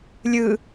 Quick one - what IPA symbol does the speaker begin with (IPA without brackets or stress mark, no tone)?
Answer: lʲ